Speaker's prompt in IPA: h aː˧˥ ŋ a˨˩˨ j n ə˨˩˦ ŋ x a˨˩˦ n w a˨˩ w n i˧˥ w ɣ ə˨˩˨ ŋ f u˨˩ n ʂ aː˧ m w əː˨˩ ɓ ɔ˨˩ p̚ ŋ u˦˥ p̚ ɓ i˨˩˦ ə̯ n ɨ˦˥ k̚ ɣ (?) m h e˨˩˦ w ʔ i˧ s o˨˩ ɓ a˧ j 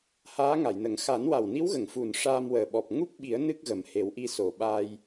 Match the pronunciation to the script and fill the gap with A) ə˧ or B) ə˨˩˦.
B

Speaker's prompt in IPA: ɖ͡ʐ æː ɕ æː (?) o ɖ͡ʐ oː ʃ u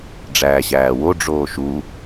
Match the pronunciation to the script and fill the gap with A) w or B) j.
A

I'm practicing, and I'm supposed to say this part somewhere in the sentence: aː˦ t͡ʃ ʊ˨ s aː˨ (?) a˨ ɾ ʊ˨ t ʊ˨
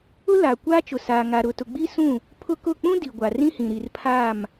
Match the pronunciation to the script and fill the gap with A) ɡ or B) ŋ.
B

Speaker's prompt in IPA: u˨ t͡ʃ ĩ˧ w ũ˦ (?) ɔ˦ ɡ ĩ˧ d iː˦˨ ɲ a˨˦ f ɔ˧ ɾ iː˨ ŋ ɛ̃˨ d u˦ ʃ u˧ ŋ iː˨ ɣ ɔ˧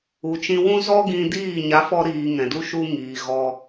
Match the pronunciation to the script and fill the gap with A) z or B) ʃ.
A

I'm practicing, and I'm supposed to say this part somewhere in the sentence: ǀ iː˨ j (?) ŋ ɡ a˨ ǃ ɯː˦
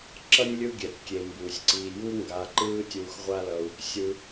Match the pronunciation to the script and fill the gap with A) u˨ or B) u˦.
B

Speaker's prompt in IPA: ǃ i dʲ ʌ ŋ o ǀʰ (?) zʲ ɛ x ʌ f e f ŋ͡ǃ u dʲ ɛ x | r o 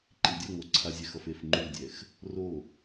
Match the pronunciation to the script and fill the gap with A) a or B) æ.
A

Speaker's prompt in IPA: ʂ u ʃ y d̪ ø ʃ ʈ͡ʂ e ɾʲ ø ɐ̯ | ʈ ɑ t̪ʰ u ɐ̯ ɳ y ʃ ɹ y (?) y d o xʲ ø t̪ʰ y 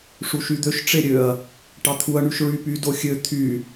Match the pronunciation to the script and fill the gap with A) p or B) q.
A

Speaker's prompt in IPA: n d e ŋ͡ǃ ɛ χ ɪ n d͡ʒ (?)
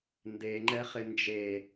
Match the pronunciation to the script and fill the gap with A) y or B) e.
B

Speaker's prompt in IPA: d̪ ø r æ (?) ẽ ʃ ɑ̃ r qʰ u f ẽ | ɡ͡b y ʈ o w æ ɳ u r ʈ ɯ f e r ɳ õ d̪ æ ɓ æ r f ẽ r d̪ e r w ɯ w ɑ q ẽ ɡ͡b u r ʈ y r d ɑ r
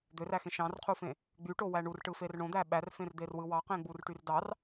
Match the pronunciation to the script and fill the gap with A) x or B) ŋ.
A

